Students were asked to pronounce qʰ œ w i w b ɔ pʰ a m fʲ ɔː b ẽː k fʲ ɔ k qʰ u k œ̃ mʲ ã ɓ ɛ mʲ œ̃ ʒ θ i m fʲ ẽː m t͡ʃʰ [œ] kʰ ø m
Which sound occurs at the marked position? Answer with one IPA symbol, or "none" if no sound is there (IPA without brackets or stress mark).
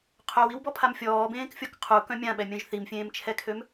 ɛ